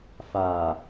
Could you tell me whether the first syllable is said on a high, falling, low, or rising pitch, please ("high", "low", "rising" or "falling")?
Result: low